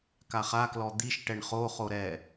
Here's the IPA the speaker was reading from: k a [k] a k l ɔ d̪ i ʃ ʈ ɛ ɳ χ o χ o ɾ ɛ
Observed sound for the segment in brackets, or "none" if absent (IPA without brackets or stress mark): χ